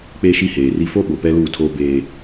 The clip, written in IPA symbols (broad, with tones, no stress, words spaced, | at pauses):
k͡pe˦ʃi˦heː˨ri˦ fo˦ ɓo˨pɛ˦luː˦˨tʰoː˦ beː˦